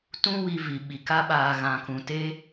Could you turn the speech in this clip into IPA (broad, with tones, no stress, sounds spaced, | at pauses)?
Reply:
t ũ˦ w i˧ v i˨ ɓ i˨ k a˦ ɓ aː˧ ɣ ã˧ k ũ˧ t e˦